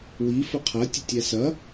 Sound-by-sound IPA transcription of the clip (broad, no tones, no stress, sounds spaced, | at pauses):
w i f ə qʰ ɐ tʲ ə tʲ æ s ɐ